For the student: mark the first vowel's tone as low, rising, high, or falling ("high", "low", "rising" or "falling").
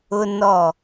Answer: high